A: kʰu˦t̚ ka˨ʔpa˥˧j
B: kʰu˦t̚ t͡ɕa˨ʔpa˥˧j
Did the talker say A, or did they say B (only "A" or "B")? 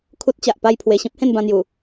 B